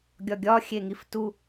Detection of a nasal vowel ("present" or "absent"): absent